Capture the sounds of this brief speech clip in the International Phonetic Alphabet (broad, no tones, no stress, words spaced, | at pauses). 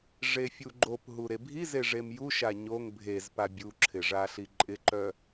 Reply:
ʐefʲuɡ͡ǃopɦu ɾebʱize ʐemjuʃa ɲoŋ bʱezpa bʲuǁʰɪ ʐaɬiǃʼɪǃœ